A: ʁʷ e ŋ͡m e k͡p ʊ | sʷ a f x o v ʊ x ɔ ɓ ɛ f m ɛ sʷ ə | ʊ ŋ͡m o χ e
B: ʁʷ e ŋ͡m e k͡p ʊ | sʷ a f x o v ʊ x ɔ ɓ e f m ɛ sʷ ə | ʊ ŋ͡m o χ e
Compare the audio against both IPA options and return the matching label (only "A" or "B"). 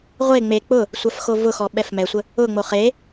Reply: A